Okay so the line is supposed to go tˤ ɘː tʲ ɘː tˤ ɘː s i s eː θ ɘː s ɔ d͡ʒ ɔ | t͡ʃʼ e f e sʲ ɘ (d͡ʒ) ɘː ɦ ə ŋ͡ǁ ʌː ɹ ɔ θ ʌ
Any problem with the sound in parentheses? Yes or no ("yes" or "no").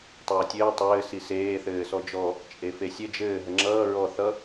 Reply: no